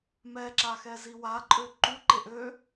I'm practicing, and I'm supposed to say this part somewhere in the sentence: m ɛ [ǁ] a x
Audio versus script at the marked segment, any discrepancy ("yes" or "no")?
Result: no